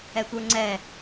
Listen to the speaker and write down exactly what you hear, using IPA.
ɛ tʷ ə˞ ŋ͡ǀ ɛ

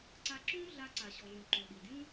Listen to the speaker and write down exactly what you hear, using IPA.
ǀ a˧ ǁ ũ˦ ɮ a˧ ǀ a˨ ɕ ɔ˨ ɮ ũ˨ ǃ o˨ ɗ i˨ dʲ ũ˦

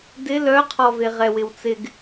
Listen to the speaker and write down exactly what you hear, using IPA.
d ɪ l œ qʰ ɔ v e ʁ ɛ w ɪ w t͡s ɪ ɡ

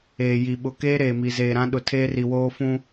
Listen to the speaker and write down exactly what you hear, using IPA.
eː˨ j i˨ ɓ ʊ˨ k eː˦ ɾ eː˨ m i˨ z eː˨ ɾ ã˦ ɗ ʊ˨ tʰ eː˦ r i˨ w oː˦ f ũ˦

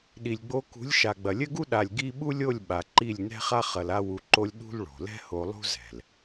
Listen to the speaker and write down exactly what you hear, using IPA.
ɗ i˨ lʲ ɡ͡b o˧ k ṳ˨˦ lʲ ʃ a˨ ɡ͡b ɐ˨ lʲ ɘ˦ ɡ u˦ ɗ a˨ lʲ ɡ i˦ ɓ u˦ lʲ o˦˨ lʲ ɓ a˨ ǃ i˦˨ lʲ n ɛ̤˦ χ a˦ χ ɐ˧ l a˦ w u˧ ǃ o˦ lʲ ɗ ṳ˦ l ɭ o̤˨ l ɛ̤˦ h o˧ lˠ ṳ˦ z ɛ̤˨ l

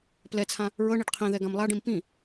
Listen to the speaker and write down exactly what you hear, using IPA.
p l ɛ t͡sʰ ã | ɹ ɤ ɳ i ɖ qʰ ĩ ð ɛ ɡ ã m lˠ a ɖ ĩ m p ĩ

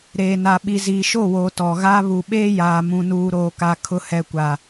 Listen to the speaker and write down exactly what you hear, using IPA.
ɾ eː˨ n a˨ ɓ i˨ z iː˨ ʃ o˦˨ w oː˨ t ɔ˨ ɣ aː˦ β u˨ ɓ eː˦ j aː˨ m ũ˨ n uː˨ ɾ oː˨ k a˨ kʰ ʊ˨ h ɛ˨ kʷ a˨

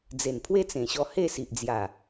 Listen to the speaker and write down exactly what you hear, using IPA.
d͡z e˨˩ n pʰ w e˦ t͡s ẽ˨˩ ɕ ɔ˧ h e˥˧ s i˨ ʔ d͡z j a˨˩

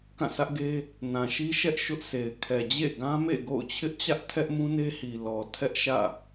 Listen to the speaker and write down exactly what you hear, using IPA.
k ã˦˨ s ä˦ ʔ ɡ e˦ | n ã˨ ʃ i˦ ʃ ɛ˦ ʔ ʃ ʊ˦ ʔ sʰ e˨ ɪ̯ kʰ ɛ˨ d͡ʑ ḛ˦˨ ɡ ã˦ m ḛ˦˨ ɡ o̰˦˨ ʊ̯ t͡ɕʰ ɪ˦ ʔ t͡ɕ ä˦ ʔ tʰ ɛ˦ ʔ m ũ˦ n e˦ h i˨ l ɔ˨ tʰ ɛ˦ ʔ ʃ ä̰˦˨

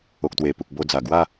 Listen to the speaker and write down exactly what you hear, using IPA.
o˨ k̚ t̪ w e˨˩ p u˨ k̚ b o˧ d͡z a˨˩ ɡ w a˥˧

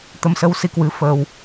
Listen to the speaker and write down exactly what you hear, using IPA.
t̪ ə˧ m s ə˧ w s i˧ k w ɨ˨˦ f əː˧ w

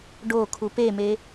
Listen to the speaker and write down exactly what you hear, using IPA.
ɖ o kʰ u p e m e

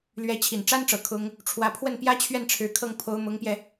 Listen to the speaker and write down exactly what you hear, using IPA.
l ɥ ɛ˧˥ t͡ɕʰ i˨˩ n ʈ͡ʂ a˥ n ʈ͡ʂ ɤ˨˩ kʰ ʊ˥ ŋ | ʈ͡ʂʰ w ä˧˥ pʰ w ə˥˩ n p j ä˥ t͡ɕʰ ɥ ɛ˥˩ n ʈ͡ʂʰ ɻ̩˧˥ kʰ ɤ˥˩ ŋ pʰ o˧˥ ʊ̯ m ʊ˧˥ ŋ p j ɛ˧

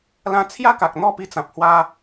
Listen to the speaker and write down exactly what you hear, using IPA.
l ã˧ t͡sʰ j a˦ k a˨ k̚ n̪ ɔ˥˧ p i˧ t͡s ã˨ p̚ h w a˦

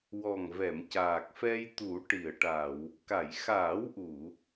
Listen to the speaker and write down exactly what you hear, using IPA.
w ɔ˨˩ ŋ v ɛ˨˩˨ m c aː˨˩ k̚ f ɛ˧ j t̪ u˨˩˦ ʈ i˨˩˨ ə̯ ʈ a˨˩˨ w | k a˨˩˨ j x aː˨˩˦ w ʔ u˨˩˨

